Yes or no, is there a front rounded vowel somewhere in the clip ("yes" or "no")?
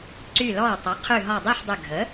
yes